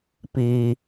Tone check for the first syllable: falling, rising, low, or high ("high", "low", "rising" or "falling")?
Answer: low